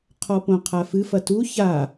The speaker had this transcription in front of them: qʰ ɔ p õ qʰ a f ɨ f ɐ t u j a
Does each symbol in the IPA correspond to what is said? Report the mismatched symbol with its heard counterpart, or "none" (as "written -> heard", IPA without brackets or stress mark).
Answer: j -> ç